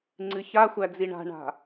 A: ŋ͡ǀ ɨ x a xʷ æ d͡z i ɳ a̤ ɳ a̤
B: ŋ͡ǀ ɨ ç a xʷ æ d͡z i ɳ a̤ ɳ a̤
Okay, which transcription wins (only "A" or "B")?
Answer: B